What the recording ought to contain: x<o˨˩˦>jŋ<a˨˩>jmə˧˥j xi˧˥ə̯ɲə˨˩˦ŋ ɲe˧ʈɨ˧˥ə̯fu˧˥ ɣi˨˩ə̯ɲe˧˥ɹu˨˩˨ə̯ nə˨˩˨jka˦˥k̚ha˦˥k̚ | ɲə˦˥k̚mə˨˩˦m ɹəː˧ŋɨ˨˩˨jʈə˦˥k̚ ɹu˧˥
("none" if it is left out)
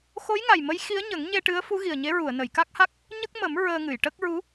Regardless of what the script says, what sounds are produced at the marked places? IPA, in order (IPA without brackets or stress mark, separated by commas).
o˧˥, a˨˩